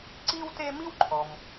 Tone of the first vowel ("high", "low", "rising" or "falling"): high